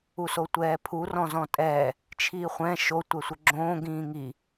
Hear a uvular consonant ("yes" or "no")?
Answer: yes